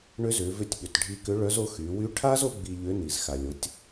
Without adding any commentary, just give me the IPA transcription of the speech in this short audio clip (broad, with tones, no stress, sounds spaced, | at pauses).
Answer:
ɳ ʏ˧˥ z ʏ˩˧ v ʏ˧ tʲ ɓ ʏ˩ t ɖʱ i˧ k ʏ˧˥ ɭ œ˧˥ z o˧˥ x y˩˧ w y˧˥ ʈʰ a˥ z o˥ ɡ͡b i˧ ʎ ʏ˧˥ n i˩ z x a˩ lʲ o˩˧ tʲ